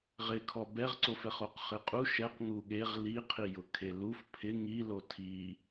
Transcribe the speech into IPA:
ʁ ɪ kʰ ɔ b ɛ ʁ ǀ o f ɛ χ o q χ ɪ qʼ u ʃ ɛ q ŋ u ɠ e ʁ l i qʰ i j ʊ kʰ e l u f pʰ ɪ ŋ i l o tʰ i

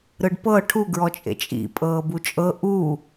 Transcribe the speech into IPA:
ɾ ɯ ɖ p ɤ ʈʰ u ɡ ɹ ɔ t͡ʃʼ ḛ t͡ʃʼ ḭ pʼ ɤː b u t͡ʃʼ ɤ ʔ u

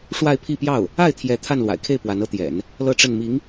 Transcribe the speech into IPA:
ʂ w a˥˧ ɪ̯ pʰ i˥˧ p j ɑ˥˩ ʊ̯ | a˥˩ ɪ̯ t̪ʰ j ɛ˧˥ t̪ʰ a˥˩ n l w a̰˨˩ ɪ̯ kʰ e˥˩ ɪ̯ p w a˧˥ n ɤ˧˥ t̪ j ɛ̰˨˩˦ n | l ɤ˥˧ ʈ͡ʂ ə˥˩ n m i˧˥ ŋ

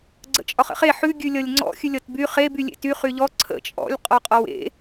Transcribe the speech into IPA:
ɡ͡ǀ ə̰ t͡ʃʼ ɒ χ ə̰ χ e ħ ʉ ɡʲ ʉ lʲ ʌ lʲ ŋ͡ǀ ɔ̰ xʲ ʉ lʲ ʌ t b y χ e b y lʲ ḛ t y χ y ʎ ɔ ǀʰ ə̰ t͡ʃʼ ɔ̰ lʲ qʼ ɔ qʼ ɔ w ḛ

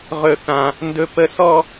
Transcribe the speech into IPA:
ʁ ɵ˦ θ ã˦ | n d ɵ˦ p ə˦ s ɔ˦

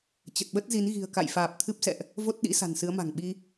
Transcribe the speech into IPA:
t͡ɕ ə˨˩ t̚ ɓ ə˦˥ t̚ z i˨˦ n ɣ i̤˨˩ ə̯ k a̰˧˨ j f aː˨˩ p̚ t̪ʰ ɨ˦˥ p̚ s ɛ̰˧˨ ʔ | v o˦˥ t̚ ɗ ḭ˧˥ s a̤˨˩ n s ɨ˨˦ ə̯ m a̤˨˩ ŋ ɓ i˧

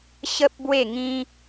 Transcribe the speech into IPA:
ɕ ə˦ p̚ b w e˥˧ ŋ ĩ˦

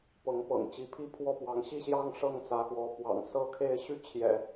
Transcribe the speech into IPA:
p ɤ˧˥ ŋ p ɤ̰˨˩ ŋ t͡ɕ i˧˥ pʰ i˥˧ pʰ w ɔ˥˩ p w ɑ˧˥ ŋ ɕ i˥˧ ɕ j ɑ˥˧ ŋ ʂ ɤ˥˩ ŋ t͡s ä˧˥ x w ɔ˧˥ p w ɑ̰˨˩ ŋ s ɤ˥˧ kʰ e˥˧ ɪ̯ ɕ y˥˩ t͡ɕʰ j ɛ̰˨˩˦

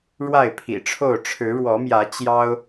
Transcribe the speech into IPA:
ɻ w a˥˨ ɪ̯ pʰ ḭ˨˩ ʈ͡ʂʰ o˥˨ ʊ̯ ʈ͡ʂʰ ɻ̩˨˦ ɻ w ɔ˨˦ m j ä˨˦ t͡ɕ j ɑ˦ ʊ̯

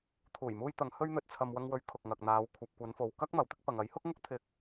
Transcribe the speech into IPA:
t̪ʰ uː˨˩ j m uː˧ j t̪ ɐ˨˧ ŋ h ɵ˥ ɥ n̪ ɵ˧ t̚ t͡sʰ ɐ˧ m w ɐ˧ ŋ w ɵ˨˥ ɥ kʰ ʊ˨ k̚ ŋ ɐ˨ k̚ n̪ aː˨˧ w kʷʰ ɐ˨ p̚ kʷ ɐ˨˧ n f o˨ w k ɐ˥ k̚ m ɐ˨ w t̪ ɪ˥ k̚ p ɐ˨ ŋ ɐ˨˥ j h ʊ˥ k̚ ŋ ʊ˥ k̚ t̪ʰ ɪ˨ k̚

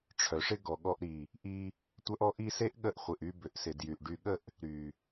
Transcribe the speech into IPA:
ʈ͡ʂʰ œ˨ ʂ ɪ˦ ɡ ɔ˨ ɠ ɔ˧ ʔ ɾ i˨ | ʔ i˧ | tʷ œ˦ ʔ ɔ˦ ʔ i˦ s e˦ ʔ ɠ ə˧ ʔ χʷ ɪ˨ ʔ y˧ b ʏ˨ ʔ s ɪ˨ d j y˨ ʔ ɖ y˨ ɠ ə˦˨ ʔ | ɾ y˨

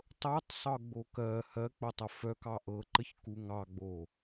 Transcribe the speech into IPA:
tˤ ɤ tˤ sˤ ɤ ɡ͡b o k ɜ h ɜ k͡p o tˤ ə f œ k ɑ ʔ ɤ ǃ ə ç k u ŋ ɑ ɡ͡b o

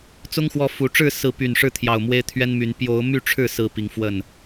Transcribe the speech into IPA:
t͡s ʊ˦ ŋ x w ɔ˨˦ f u˨˦ ʈ͡ʂ ɻ̩˥˨ s ɹ̩˨˦ p y˨˩ n ʂ ɻ̩˥˨ t̪ʰ j ɑ˨˩ ʊ̯ m w e˦ ɪ̯ t̪ʰ ɥ ɛ˦ n m y˨˦ n p j o˨˦ ʊ̯ m y˥˨ ʈ͡ʂʰ ɻ̩˥˨ s ɹ̩˨˦ p i˨˦ ŋ f w ə˥˨ n

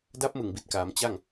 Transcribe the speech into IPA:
d a˦˥ p̚ m ɯ˨˩ ŋ b i˨˩ t̚ k aː˩˦ m t͡ɕ a˥˩ ŋ

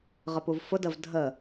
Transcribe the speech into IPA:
ʁ ə p u v f ʊ d ə v dʱ ə

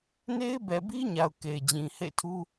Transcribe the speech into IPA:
n e˦ ɪ̯ b ɛ˨ b i˦ ɲ a˨ ʊ̯ k e˨ ɪ̯ d͡ʑ ĩ˨ h ḛ˦˨ ɪ̯ tʰ u˦

